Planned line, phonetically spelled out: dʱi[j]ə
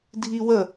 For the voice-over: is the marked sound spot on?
no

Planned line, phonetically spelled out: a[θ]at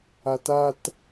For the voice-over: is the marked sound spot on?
no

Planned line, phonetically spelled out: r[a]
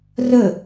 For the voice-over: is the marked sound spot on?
no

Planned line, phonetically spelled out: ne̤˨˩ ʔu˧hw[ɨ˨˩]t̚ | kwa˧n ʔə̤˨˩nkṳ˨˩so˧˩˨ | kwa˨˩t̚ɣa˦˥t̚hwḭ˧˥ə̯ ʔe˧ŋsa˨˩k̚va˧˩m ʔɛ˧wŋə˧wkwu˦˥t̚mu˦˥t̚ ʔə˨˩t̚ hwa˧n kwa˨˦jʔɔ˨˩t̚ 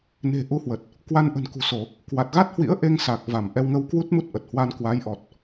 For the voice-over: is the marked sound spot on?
no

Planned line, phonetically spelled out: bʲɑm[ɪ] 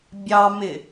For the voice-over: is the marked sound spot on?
yes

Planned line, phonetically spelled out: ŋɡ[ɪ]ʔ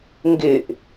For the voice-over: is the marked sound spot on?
yes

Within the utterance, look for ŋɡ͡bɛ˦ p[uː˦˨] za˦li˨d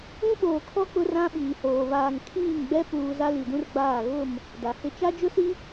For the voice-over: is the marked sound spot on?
no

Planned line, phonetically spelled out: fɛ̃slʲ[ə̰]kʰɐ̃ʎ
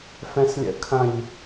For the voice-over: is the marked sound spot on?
yes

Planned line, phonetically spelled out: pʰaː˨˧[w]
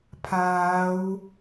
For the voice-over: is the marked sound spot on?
yes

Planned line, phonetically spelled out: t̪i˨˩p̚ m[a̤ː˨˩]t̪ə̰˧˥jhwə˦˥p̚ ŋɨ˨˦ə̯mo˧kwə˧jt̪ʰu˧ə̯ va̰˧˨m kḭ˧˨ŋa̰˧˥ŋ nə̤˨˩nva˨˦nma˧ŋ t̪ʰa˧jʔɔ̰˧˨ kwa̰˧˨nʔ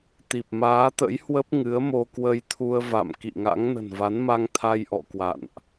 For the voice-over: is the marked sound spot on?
no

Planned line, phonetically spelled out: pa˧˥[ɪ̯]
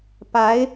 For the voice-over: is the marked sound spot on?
yes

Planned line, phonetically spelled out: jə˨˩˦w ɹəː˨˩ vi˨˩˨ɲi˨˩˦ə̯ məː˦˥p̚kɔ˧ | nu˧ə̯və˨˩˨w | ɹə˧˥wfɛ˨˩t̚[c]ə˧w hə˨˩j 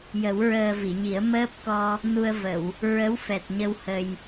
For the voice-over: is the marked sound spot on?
no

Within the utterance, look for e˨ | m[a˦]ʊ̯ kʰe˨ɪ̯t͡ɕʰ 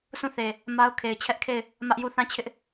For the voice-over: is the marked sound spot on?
yes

